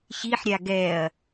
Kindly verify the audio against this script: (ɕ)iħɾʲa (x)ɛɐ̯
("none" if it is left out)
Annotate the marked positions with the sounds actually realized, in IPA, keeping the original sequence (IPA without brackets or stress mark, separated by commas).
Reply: ɕ, ɡ